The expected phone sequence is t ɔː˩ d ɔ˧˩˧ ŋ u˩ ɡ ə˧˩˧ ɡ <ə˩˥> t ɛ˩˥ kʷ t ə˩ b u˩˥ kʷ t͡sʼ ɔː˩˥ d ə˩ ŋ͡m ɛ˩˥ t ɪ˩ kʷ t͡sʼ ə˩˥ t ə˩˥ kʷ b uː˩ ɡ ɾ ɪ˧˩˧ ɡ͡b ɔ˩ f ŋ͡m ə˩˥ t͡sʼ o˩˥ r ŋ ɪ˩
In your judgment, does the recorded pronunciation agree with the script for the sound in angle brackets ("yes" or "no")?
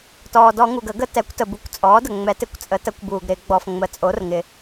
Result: yes